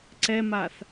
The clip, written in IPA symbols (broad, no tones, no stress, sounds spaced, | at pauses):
ǀ ɛ m a θ